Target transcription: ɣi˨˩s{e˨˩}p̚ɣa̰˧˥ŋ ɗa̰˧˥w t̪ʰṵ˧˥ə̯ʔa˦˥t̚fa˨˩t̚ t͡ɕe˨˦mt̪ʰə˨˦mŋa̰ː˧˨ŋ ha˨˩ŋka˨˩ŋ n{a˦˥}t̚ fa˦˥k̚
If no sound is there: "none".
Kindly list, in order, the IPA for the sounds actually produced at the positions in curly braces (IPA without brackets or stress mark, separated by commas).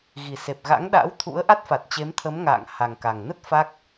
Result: e˨˩, ə˦˥